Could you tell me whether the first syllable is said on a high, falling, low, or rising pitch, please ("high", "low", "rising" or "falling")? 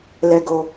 low